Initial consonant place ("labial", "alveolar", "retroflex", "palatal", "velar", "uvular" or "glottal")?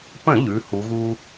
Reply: labial